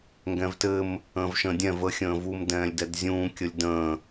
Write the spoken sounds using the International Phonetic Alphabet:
ŋ ɡ ɛ̃ v t ɘ m | ə̃ː v ʃ ə̃ː dʲ ɛ̃ v ə xʲ ə̃ː v u m d ɛ̃ː lʲ d ɛ d zʲ ũː kʲ ə lʲ d ə̃ː

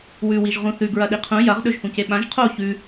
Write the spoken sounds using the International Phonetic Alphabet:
w ʉ w i ʒ ʁ ũ θ ʉ ɡ ɹ ɐ ɗ i qʰ ũ j ɐ ʁ ɗ ɵ ʒ h ũ c e ɓ ã ʒ qʰ o ç ʉ

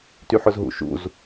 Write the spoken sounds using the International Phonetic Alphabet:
t y ħ ʊ z ɦ ṵ ʃ ṵ z

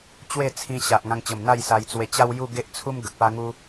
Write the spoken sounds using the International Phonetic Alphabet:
t͡ɕ w e˥˧ t͡sʰ ĩ˧ ɕ a˨ ʔ ŋ ã˧ ŋ t͡ɕ ə˨˩ m n̪ a˥˧ j s a˧ j t͡s w e˧ t͡ɕ a˦ w j u˥˧ ɡ e˦ ʔ t͡sʰ u˦ m ɡ ə˨ k̚ p a˦ ŋ u˦

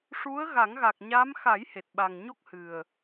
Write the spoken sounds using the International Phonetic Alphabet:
ʂ u˧˥ ə̯ ɣ a˨˩˦ ŋ ɣ a˨˩ k̚ ɲ a˧˥ m x a˨˩˦ j h e˨˩ t̚ ɓ a˨˩ ŋ ɲ o˦˥ k̚ h ɨ˨˩ ə̯

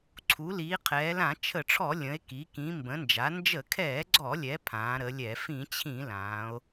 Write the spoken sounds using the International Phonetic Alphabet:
ǀʰ u˩˧ l iː˩˧ qʰ ɛː˩˧ l ã˧˩˧ t͡ʃʰ ə˧˩˧ ʈ͡ʂʰ ɔ˧˩˧ lʲ ə̃˩˧ e̯ k i˩˧ k ĩ˩˧ m b ə̃˩˧ n d͡ʒ a˩˧ n d͡ʒ ə˧˩˧ kʰ ɛː˧˩˧ ɡ͡ǀ ɔ˧˩˧ lʲ ɛ˩˧ pʰ ãː˩˧ ɾ ə˩˧ lʲ ɛ˧˩˧ f ĩ˧˩˧ t͡ɕʰ ĩ˧˩˧ l ãː˩˧ o̯

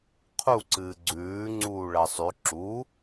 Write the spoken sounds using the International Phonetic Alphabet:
qʰ u ǀ ɨː ɡ͡ǀ ʉː ŋ͡ǀ uː ɭ ɐ sˤ ʉ ǁ u

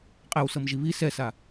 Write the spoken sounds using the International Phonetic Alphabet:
qʼ ɛ w s ɤ m ʒ i β i s ɛ s a

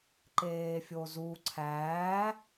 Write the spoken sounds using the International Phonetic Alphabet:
ǃ eː fʲ o z u ǀʰ æ

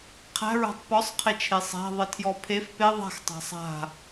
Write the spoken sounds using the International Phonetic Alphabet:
qʰ æ̤ ɹ æ̤ tˤ p ɔ sˤ qʰ e t͡ʃʰ e sˤ æ̤ ðˤ e tʰ j ɔ pʰ e f p e ðˤ a̤ x tˤ a̤ sˤ a̤

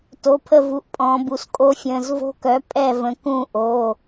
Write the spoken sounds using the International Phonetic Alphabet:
t o˩˧˩ pʰ ə˦˨ v u˩˧˩ ʔ pʼ ɔ̃ː˩˧ b u˩ s kʼ o˦˥ fʲ ə̃ː˩˧˩ z v o̤˦˥ k œ˩˥ pʼ ɛ˦˨ v ə̃˩˧ k ũ˦˨ ʔ o˩˧˩

